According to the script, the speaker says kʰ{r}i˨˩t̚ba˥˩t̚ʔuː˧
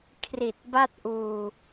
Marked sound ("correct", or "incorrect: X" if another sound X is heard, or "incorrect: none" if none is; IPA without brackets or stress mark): correct